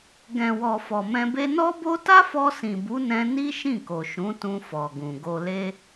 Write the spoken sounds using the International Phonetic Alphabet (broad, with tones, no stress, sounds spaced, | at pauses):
ɡ ɛ̃˨ w ɔ˨ f ɔ˨ m ɛ̃˧ b e˦ n ɔ˦ b o˦ t a˦ f ɔ˧ s ĩ˨ b u˨˦ n ɛ̃˧ n i˦ ʃ ĩ˦˨ k o˨ ʃ ũ˨˦ t ũ˧ f ɔ˨ ɡ ũ˨ ɡ o˧ l e˦